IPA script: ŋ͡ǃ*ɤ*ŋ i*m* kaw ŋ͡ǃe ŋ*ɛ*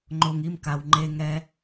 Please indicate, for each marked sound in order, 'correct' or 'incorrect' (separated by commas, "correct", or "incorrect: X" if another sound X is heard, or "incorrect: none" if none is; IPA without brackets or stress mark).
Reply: incorrect: o, correct, correct